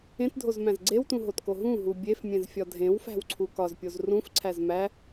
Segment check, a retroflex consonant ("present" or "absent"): absent